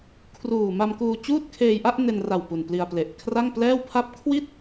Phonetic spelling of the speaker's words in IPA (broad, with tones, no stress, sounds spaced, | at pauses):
kʰ r uː˨˩ m a˧ m k uː˧ t͡ɕ uː˥˩ t̚ kʰ eː˧ j ʔ a˥˩ ʔ n e˧ n r a˨˩ w p u˨˩ n p l i˧ a̯ p l e˨˩ ʔ kʰ r a˥˩ ŋ p l ɛː˥˩ w pʰ a˦˥ p̚ kʰ w i˥˩ t̚